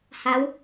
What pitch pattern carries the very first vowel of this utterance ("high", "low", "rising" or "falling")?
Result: rising